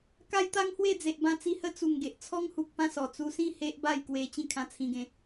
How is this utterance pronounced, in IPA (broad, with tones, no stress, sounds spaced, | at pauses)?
k a˦ j t̪ a˦ ŋ h w e˥˧ d͡z e˨ ʔ b ã˧ t͡s i˧ h ə˦ t͡s u˨˩ ŋ ɡ e˨ ʔ t͡sʰ ɔ˦ ŋ h u˨ k̚ p ã˥˧ s ɔ˨˩ t͡s u˧ s ĩ˥˧ h e˦ ʔ b a˥˧ j k w e˧ t͡ɕ ĩ˥˧ kʰ ã˧ t͡sʰ ĩ˧ ɡ ẽ˧